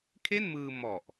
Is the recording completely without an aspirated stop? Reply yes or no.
no